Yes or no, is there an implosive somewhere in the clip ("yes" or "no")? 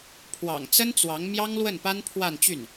no